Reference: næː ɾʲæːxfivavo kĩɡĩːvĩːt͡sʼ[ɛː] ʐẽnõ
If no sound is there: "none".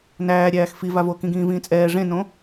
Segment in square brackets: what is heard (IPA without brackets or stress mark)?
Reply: ɛː